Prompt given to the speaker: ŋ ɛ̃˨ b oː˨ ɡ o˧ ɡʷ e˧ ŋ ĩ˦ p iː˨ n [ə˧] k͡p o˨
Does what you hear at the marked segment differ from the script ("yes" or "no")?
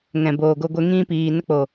no